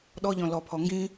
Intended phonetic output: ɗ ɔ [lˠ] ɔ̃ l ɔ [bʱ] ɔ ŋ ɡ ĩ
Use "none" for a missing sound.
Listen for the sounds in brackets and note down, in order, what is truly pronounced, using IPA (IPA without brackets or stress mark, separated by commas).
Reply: ʎ, pʰ